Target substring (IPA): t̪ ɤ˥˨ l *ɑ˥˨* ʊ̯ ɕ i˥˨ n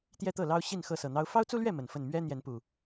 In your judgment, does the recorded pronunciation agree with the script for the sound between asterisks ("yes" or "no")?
no